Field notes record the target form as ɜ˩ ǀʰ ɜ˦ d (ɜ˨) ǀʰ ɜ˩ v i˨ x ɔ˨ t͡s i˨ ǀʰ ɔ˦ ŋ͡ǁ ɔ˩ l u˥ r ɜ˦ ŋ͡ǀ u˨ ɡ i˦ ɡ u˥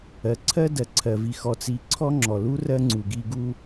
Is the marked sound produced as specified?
no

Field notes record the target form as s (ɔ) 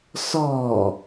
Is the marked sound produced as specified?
no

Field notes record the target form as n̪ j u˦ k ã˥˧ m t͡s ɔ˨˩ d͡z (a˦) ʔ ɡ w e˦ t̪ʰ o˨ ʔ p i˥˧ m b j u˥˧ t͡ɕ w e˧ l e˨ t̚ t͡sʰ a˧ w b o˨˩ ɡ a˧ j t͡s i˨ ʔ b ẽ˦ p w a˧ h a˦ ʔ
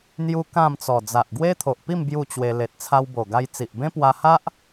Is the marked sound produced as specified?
no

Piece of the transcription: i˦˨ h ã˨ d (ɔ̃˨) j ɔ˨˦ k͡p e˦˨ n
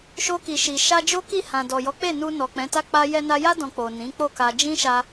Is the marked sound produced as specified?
no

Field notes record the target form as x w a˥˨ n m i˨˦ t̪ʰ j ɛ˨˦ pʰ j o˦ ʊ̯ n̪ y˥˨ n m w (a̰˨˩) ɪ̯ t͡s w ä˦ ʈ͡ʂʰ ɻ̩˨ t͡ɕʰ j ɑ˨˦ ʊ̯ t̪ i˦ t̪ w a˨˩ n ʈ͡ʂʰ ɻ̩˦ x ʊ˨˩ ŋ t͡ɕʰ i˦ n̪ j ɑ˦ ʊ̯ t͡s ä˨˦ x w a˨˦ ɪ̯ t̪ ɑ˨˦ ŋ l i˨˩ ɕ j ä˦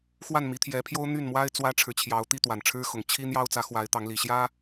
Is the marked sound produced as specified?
no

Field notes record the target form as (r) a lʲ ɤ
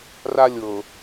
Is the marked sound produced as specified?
yes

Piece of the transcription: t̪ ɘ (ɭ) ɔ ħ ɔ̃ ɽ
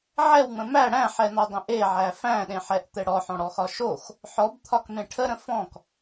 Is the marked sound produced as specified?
no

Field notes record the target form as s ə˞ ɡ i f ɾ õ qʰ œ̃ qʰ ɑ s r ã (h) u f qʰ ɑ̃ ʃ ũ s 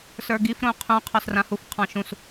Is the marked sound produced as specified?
yes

